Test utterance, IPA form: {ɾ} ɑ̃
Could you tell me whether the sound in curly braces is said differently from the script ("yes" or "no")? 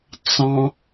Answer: yes